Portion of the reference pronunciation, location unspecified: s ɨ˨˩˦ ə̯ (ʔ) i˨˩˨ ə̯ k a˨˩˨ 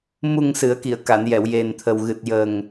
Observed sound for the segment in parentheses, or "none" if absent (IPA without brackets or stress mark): k